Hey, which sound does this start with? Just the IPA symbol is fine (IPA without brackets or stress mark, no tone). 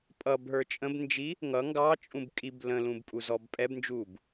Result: pʼ